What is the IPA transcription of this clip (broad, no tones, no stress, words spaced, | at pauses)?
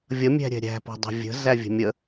vʲʌmʲæ̤ɾʲɛ̤ ɾʲæ̤pɔ̤dˤɛ̤ vʲə̤zævʲə̤ mʲə